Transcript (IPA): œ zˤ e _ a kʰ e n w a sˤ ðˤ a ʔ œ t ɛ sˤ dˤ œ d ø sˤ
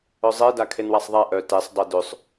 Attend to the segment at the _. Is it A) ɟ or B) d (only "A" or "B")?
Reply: B